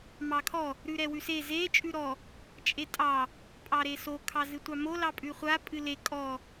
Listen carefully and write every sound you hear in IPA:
m ɑ kʰ ɔ | ɾ ʉ ɾ ɛ w ʉ s e z e t͡ʃʼ ʉ ɾ ɔ | t͡ʃʼ e tʼ ɑ | pʼ ɑ ɾ e s o kʰ ɑ z ɨ tʷ ɑ m o l ɑ pʼ ʉ χʷ a pʼ ɨ l e kʼ ɔ

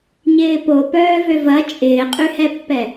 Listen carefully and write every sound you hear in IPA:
ɲ ɪː p o p œː v ø v ɐ t͡ʃʼ ɪː qʼ y h ɛ pː ɛ

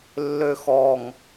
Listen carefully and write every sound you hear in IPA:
lː ø x ɔ ŋ

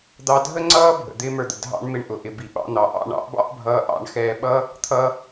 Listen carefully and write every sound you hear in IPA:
d̪ ɑ˧ dʱ ə˦ ŋ͡ǀ ʌː˦ bʱ ə̰˨ d̪ ɪː˦ m ə˞˧ d̪ ə̰˨ dʱ ɑ̰˦ ɳ m ɪ˧ ɳ ʔ ʊ˨ ʔ ɪ˨ b i˨ ɓ ɑ̰˧ n̪ ɑ˨ ʔ ɑ̰˦˨ ɳ ɑ̰˦ ʔ b ɑ̰˦ ʔ bʱ ʌː˧ ʔ ɑ̰˦˨ ɳ x ɛː˧ ɓ ʌ˦ | t̪ʰ ʌ˧

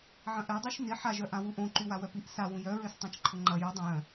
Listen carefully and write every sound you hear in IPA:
ʕ ɐ̃ ʔ ɛ dˤ u ʃ n ɪ ħ a ʒ œ ʔ ã w u ʔ õ ǃ y w a w œ p i ʔ s a w ũ j œ ɹ ø s tˤ ã t͡ʃ ǃʰ ʊ ŋ͡ǃ ɐ j u dˤ œ̃ j œ̃

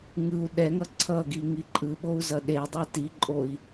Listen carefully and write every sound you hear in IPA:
ŋ ɯ u̯ ɗ ɛ ŋ ʌ ǀʰ ʌ ɡ i ŋ i ǃʼ ɯ ɓ o u̯ z ʌ ɗ e dˤ a t i ǃʼ o i̯

